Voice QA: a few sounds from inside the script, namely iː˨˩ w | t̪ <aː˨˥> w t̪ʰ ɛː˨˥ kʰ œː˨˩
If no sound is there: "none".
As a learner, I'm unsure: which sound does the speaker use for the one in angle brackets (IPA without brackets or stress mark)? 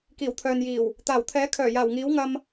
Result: aː˨˩